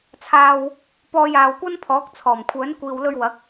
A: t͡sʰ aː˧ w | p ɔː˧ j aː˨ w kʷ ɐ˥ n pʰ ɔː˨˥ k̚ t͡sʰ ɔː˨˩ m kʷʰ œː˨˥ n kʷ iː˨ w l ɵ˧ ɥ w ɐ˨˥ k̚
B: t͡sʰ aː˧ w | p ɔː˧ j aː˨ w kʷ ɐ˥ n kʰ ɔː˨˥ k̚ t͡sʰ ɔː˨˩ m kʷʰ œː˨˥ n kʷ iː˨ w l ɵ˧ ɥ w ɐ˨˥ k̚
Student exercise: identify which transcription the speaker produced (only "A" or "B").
A